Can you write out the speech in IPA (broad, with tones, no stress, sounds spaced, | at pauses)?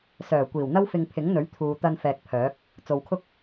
s œː˨˩ kʷ iː˨˩ w n̪ ɐ˥ w f ɪ˧ ŋ pʰ ɪ˨˥ ŋ n̪ ɵ˨˥ ɥ t̪ʰ uː˨ t̪ ɐ˧ n f ɛː˨ k̚ pʰ œː˨˥ k̚ | t͡s o˨ w kʰ ʊ˥ k̚